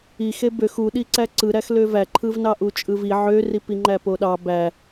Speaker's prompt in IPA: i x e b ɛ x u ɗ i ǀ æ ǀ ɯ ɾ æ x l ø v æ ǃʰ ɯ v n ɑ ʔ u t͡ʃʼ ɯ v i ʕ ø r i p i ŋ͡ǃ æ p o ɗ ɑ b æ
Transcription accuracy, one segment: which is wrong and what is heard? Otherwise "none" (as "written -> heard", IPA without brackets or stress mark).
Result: ɛ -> ø